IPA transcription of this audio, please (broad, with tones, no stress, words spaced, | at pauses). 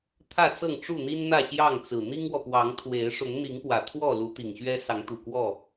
t̪ʰä˥˨t͡sɤ˥˨ŋʈ͡ʂu˥˨n̪i˦n n̪ä˥˨ɕjɑ˥˨ŋt͡sɹ̩˨˩ n̪i˦ŋwɔ˨pwɑ˨˦ŋt̪ʰwe˨˦ɪ̯ ʂʊ˨˦ŋn̪i˨˦ŋpwä˨˩ t̪ʰwɔ˥˨ lu˨˦t̪i˨˩ŋɕɥɛ˦ sɑ˨˦ŋt̪u˨˩kwɔ˥˨